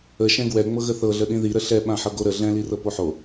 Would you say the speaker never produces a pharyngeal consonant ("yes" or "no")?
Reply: no